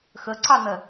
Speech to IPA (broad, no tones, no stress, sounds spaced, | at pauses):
x ə ǀ ɑ n̪ ɜ